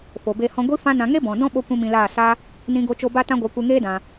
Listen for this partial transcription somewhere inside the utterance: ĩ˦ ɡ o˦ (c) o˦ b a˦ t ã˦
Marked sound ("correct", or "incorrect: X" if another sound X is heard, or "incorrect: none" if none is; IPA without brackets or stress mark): incorrect: t͡ʃ